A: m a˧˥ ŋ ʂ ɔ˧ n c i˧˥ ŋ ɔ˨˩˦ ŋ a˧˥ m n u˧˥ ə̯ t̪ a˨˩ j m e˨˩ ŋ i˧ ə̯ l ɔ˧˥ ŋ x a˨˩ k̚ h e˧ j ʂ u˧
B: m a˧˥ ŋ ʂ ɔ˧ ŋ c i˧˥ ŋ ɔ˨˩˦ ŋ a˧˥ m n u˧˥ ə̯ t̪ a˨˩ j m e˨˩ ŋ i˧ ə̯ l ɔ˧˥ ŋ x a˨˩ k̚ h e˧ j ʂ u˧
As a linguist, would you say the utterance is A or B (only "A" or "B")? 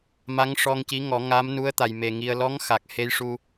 B